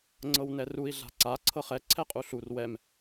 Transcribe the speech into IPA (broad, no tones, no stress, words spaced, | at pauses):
ŋ͡ǀɤwnɛrui̯ ɮa̤ǀa ǀʰɤχɛ ǀʰɛqʼuɬur wɛm